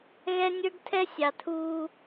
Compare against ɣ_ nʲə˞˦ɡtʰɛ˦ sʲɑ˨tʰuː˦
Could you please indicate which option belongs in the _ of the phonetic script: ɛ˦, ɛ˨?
ɛ˦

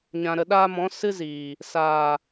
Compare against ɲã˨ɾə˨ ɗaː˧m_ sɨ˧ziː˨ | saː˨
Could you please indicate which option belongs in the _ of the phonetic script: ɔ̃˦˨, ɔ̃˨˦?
ɔ̃˨˦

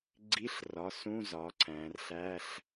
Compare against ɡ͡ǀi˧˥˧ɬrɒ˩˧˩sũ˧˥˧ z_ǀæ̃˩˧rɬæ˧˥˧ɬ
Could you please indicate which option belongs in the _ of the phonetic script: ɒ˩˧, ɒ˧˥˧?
ɒ˩˧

